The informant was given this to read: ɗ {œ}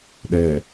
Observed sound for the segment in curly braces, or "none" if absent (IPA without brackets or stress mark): ɛ